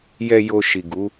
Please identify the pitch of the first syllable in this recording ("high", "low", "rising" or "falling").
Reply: low